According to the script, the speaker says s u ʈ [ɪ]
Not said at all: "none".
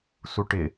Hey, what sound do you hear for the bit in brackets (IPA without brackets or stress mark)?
ɪ